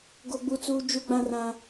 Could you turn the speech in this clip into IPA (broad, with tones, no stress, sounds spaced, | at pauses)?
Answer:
ɡ o˦ ɡ͡b u˦ t͡s uː˦ d͡ʒ u˦ ɡ͡b ã˦ r ã˦